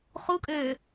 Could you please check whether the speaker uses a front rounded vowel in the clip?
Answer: yes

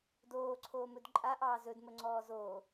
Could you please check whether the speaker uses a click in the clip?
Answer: yes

